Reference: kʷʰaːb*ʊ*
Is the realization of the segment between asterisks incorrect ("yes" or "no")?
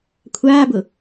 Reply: no